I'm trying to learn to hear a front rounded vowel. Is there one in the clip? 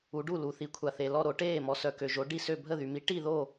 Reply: yes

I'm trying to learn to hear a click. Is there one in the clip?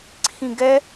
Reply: yes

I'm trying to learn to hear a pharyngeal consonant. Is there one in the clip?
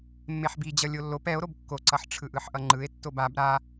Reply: yes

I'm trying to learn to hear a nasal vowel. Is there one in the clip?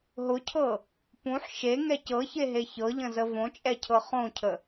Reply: yes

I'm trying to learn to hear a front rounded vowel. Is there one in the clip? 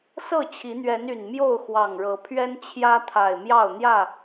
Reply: yes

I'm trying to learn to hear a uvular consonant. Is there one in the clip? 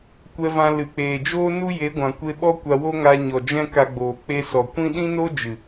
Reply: no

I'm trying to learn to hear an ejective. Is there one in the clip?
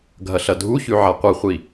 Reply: no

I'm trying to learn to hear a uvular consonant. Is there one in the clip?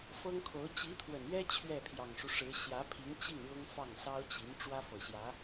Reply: no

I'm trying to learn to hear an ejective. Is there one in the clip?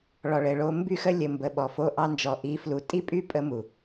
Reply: yes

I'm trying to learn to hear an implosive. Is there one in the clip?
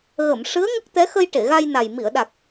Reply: yes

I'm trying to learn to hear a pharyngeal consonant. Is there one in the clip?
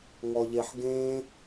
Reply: yes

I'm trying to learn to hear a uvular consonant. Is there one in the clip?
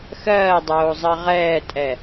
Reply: yes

